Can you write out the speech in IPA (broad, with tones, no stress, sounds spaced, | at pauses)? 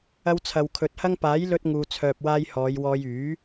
ɐ˧ w t͡sʰ ɐ˨ w kʰ ɵ˨˥ t̚ h ɐ˥ ŋ p aː˨˥ j l ɵ˧ t̚ ŋ uː˨ t͡sʰ œː˨ p̚ w aː˧ j h ɔː˨˧ j w ɔː˧ j yː˨˥